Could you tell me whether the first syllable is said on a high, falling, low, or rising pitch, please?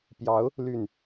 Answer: rising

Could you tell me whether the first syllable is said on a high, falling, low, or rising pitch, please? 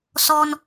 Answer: high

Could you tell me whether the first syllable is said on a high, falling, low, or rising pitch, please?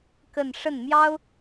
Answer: falling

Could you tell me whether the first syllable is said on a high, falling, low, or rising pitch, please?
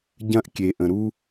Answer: high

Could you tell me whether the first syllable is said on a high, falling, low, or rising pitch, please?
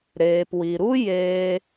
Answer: low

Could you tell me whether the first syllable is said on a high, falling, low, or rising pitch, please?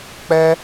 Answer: high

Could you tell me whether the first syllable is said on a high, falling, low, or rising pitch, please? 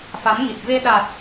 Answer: rising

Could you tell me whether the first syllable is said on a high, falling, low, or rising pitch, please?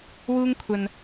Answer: high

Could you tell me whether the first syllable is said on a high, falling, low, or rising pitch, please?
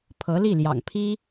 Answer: rising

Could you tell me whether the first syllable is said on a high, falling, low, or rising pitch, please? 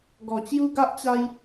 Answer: low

